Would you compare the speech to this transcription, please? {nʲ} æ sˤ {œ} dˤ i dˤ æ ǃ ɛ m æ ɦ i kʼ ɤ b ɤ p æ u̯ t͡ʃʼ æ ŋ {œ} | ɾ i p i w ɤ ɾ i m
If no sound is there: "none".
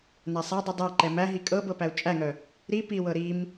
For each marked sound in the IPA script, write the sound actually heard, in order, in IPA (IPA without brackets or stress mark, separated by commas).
n, æ, œ